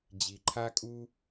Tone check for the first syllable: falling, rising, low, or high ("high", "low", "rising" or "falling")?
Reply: low